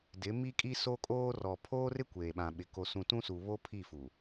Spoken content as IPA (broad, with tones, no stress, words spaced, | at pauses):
dɪ˨˦mi˦kʼi˦ so˦kʼoː˦rɔ˨ pʰoː˦rɪ˦ kʷeː˨ɓã˨ɓɪ˨ ko˨sũ˨tũ˦su˨ βo˦pʰi˦˨fu˨